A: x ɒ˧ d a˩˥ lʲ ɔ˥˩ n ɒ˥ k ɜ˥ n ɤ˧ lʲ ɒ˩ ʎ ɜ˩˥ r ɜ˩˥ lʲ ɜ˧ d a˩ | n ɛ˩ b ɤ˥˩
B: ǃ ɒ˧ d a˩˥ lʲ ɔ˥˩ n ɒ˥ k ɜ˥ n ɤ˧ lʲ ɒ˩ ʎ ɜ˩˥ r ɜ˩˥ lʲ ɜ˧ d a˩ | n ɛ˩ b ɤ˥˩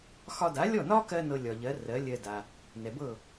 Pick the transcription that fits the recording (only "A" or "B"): A